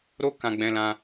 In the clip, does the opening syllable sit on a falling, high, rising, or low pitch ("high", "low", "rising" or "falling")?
high